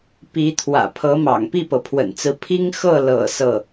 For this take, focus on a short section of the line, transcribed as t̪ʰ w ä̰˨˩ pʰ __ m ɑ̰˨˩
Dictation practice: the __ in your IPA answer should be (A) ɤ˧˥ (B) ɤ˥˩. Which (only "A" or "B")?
A